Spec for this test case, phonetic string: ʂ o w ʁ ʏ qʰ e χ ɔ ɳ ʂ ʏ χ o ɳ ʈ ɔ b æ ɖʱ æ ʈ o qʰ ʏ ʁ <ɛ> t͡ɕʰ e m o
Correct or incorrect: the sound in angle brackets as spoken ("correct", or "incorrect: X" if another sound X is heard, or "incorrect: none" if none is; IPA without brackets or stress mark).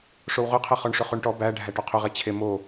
incorrect: e